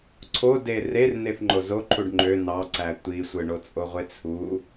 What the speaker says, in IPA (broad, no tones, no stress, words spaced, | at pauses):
ǀʰo derer nefŋ͡ǃozoǃʰuɖ ŋ͡ǃø nɑǀæ tʷisʷɯɳot͡sʼo ʁʷet͡sʰu